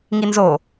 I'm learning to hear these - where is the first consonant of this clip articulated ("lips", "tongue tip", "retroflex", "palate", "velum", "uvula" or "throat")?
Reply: velum